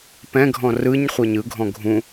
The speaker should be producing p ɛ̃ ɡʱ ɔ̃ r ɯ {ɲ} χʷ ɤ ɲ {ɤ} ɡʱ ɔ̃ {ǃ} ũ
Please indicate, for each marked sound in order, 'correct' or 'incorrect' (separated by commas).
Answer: correct, incorrect, incorrect